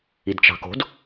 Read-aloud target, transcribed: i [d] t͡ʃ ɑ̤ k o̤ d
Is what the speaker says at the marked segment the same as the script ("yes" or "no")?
yes